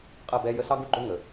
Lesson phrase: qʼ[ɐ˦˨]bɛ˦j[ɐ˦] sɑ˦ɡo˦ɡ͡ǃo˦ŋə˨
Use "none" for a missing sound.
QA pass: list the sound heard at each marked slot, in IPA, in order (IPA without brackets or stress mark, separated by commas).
ɐ˦˨, ə˦